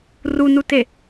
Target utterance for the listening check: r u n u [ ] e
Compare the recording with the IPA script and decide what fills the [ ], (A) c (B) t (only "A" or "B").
B